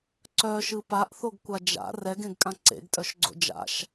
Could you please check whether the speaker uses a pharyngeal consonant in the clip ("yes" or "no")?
no